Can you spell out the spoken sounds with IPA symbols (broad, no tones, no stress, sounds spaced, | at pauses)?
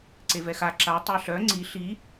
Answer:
ǀ e v ɛ x a ǁ a tˤ a ɬ œ ŋ͡ǀ i ɬ i